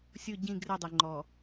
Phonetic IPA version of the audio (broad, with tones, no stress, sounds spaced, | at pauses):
sʲ ʊ˦˨ ɟ ĩ˦˨ ɡ r ɪ˦˨ dˤ ɪ˨ ŋ͡ǃ ɔ˨